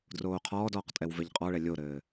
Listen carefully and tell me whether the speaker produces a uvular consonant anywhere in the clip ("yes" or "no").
yes